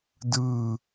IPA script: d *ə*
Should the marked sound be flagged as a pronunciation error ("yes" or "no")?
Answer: yes